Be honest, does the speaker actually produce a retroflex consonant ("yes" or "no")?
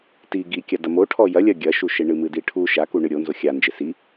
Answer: yes